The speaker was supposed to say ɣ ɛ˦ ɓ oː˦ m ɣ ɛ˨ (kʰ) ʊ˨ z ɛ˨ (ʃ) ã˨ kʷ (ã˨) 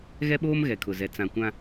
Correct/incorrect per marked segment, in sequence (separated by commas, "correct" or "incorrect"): correct, incorrect, incorrect